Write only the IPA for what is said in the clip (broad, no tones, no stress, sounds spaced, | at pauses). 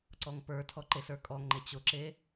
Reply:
ǀ ɔ ŋ p ə˞ tʰ ɔ ǃ e s ə˞ kʼ ɔ ŋ ŋ͡ǃ e t͡ɕ ʊ ǁ e